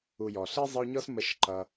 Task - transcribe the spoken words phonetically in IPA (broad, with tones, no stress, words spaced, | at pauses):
u˨jɔ˩ ɬi˥zˤə˦y̯ɲɔ˥s mə˦ʃǃʌ˨